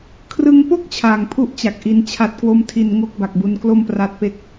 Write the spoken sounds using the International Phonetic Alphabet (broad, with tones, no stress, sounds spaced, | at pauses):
kʰ r ɯ˧ ŋ p o˥˩ k̚ t͡ɕʰ aː˨˩ ŋ pʰ u˥˩ ʔ t͡ɕ a˨˩ k̚ ʔ i˧ n t͡ɕʰ a˨˩ t̚ k w o˧ m tʰ i˨˩ n ŋ o˥˩ k̚ b a˨˩ k̚ b u˧ n k l o˥˩ m p r a˦˥ t̚ p e˥˩ k̚